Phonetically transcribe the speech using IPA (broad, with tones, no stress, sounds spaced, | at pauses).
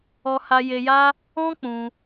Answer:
ɔ˧ h a˧ j e˧ j a˦ | ɔ̃˦ k͡p ũ˧